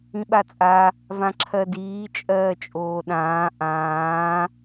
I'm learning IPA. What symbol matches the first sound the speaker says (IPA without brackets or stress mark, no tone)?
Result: ĩ